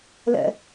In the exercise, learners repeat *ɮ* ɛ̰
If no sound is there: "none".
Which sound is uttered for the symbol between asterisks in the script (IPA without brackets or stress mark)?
l